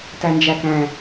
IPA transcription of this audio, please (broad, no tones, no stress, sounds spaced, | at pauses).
t æ n d͡ʒ æ k æ̃